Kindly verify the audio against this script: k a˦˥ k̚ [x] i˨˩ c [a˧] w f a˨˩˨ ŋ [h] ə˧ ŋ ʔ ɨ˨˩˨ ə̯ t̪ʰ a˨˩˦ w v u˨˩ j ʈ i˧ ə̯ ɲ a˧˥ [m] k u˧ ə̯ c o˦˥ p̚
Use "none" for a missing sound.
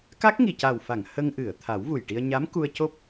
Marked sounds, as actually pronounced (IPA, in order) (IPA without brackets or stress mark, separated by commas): ŋ, a˨˩, h, m